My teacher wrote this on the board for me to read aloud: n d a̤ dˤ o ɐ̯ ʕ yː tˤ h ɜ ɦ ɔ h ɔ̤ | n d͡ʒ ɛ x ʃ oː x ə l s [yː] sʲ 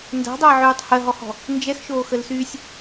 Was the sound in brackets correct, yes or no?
yes